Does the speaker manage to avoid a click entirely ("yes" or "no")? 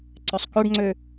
no